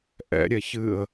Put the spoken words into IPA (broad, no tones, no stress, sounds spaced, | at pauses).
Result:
ʔ ɛ̰ ɾʲ ɛ ç ɨ ə̯